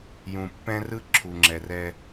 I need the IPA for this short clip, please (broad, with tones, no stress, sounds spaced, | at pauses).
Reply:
j ũ˨ pː ɛ̃˦ r ɯ˦ ǁʰ u˨ ŋ͡ǁ ɛ˨ r ɛ˦